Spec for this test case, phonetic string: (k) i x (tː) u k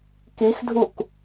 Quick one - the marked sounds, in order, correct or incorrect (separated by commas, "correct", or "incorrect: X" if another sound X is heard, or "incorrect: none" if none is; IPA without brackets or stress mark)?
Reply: correct, incorrect: dʱ